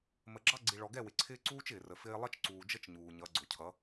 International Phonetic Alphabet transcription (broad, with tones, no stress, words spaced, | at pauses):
mə˨ɡ͡ǁɑ˦ɡ͡ǀi˨ ɭɔ˨ɡɛ˦˨wɪ˨ǀʰɪː˦ ǀuː˦t͡ʃɪː˨rə˨ fɪː˦ lˠʌ˦t͡ʃǀuː˨d͡ʒə˦t͡ʃ ɲuː˨ɲʌ˨˦ ɡ͡ǀʊ˨cʰʌ˨˦